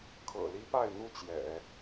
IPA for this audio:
kʰ ɤ̰˨˩ l i˥ p a˥˧ ɪ̯ n̪ u˥˩ t͡ɕ j ɛ̰˨˩˦

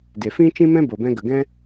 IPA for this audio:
d e˨ f ĩ˦ t͡ʃ ĩ˦ m ɛ̃˦ b o˨ b ɛ̃˧ ɡ ə˨ ɡ ɛ̃˦

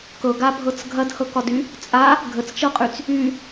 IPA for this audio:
k ɤ ɡ a bʱ ɤ t͡s ɡʱ ɐ d h ɤ k ɒ d y | t͡sʼ a | ɡʱ ə t͡s t͡ʃ ɤ qʼ y t͡s | y

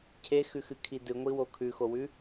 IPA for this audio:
cʰ e x ʉ x ɨ kʰ i d ɨ ŋʷ i w o kʰ ʉ x o w ʉ

